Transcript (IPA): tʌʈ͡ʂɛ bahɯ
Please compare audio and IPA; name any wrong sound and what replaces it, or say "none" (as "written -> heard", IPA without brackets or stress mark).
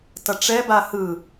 none